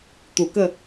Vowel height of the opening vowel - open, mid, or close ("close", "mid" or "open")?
close